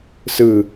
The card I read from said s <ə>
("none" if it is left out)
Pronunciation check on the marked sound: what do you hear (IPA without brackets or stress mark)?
ɯ